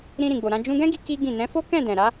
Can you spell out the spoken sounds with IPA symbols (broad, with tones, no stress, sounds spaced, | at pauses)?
ɾ ĩ˧ ɾ ĩ˨ ɡ͡b o˨ ɾ ã˧ d͡ʒ ũ˧ ɡ ɛ̃˦ ɡ i˧ k i˦ ɡ ĩ˦˨ n ɛ̃˨˦ f o˦ k ɛ̃˦˨ d ɛ̃˨ ɾ a˨˦